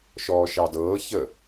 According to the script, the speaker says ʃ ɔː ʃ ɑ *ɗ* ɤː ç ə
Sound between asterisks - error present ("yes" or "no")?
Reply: yes